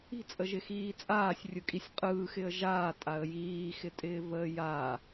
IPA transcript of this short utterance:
i̤ t͡sʼ ə ʒ ɪ x iː t͡sʼ aː sʲ rʲ ɯ kʼ i sʲ qʼ ɯː x ɪ ə̯ ʒ aː tʼ a ə̯ j iː x ɪ tʼ ɪː v əː j a

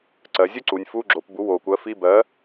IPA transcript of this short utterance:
ǀ ɜ˩˧ zʲ u˥ ǀ u˩˧ nʲ f u˧˥˧ ɡ͡ǁ o˩˧ p b u˩˥ w o˩ kʷ ɜ˩˥ f i˧˥˧ b ɜ˩˥

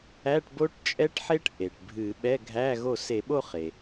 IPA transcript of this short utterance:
æ˧˥˧ ʈ b o˦˥ ʈ t͡ʃʼ ɛ˦˥ ʈ ħ e˦˥ ʈ ʔ e˩ ʈ bʱ ɨ˧˩˧ ɓ ɛ˧˥˧ ɡʱ æ˧˥˧ ɣ o˥˩ s e˧˩˧ ɓ o˥˧ χ e˩

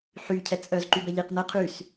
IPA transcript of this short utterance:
ħ y cʰ ɛ t͡sʼ œ z ǃ y b ɛ ʎ i q n ə qʰ y s

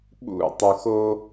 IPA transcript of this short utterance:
ɓ ṵ˦˨ tˤ u˨ x o˦

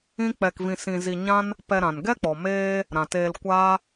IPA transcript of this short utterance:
ĩ˦ k͡p ɛ˧ k v ĩ˧ s ĩ˧ z i˧ ɲ ã˦ n | p ɛ˧ ɾ ã˨ n ɡ ɛ˦ k͡p ɔ˨ m eː˦ | ɾ ã˨ t eː˧ l kʷ aː˦

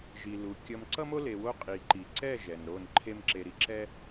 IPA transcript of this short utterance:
ʒ i˨ l u˨ kʲ ʌ˧ m ǀ ʌ˦ m o˦ l e˨ w o˧ qʼ i˨ ǃ i˨ ǀ ɛ˦˨ ʒ ɛ˨ n ɾ o˦˨ n ǃʰ e˦ m ǁ e˧ ɾ i˧ ǁ ɛ˦

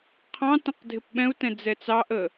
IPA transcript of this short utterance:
qʰ ɑ̃ t ə̃ q dʱ ɪ p ɓ ɛ̃ u̯ t ɛ̃ d͡z ɛ t͡s ɑ ʔ ə

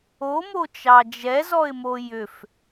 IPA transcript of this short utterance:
o m o t͡ʃ ɑ d͡ʒ ɛ z ɔ ɪ̯ m o j ʏ f

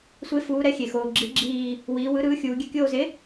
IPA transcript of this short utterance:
sʷ e˩˥ f uː˩˧ ɾ ɛ˩˥ xʲ e˩ x oː˩ ɡ͡ǁ i˩˥ ɡ͡ǁ iː˧˩ | w iː˩˧ w ɯ˩˥ ɾ ɯː˩˥ xʲ uː˩˧ ɡʲ ɛ˧˩ kʲ oː˧˩ z e˩˥

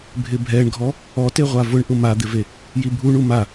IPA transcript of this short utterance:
bʱ ɪ bʱ ɛ ɳ ɡʱ ɔ | ɔ t e ʁʷ a v ʊ ɳ ʔ ʊ m a d̪ ɪ v e | j i bʱ u ɳ u m a

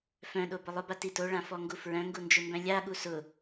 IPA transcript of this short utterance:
f œ̃ ɗ o b ʊ lˠ ʊ b a t i t o ɭ ã f ɔ ŋ ɡ u f ɹ œ̃ ŋ ɡ u n d͡ʒ ʊ m b œ̃ lʲ a ɠ u s ʊ

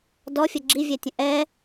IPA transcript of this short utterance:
d ɔ fʲ ə ɡ͡ǁ i vʲ ɛ tʲ ə̃ ʔ ɛ

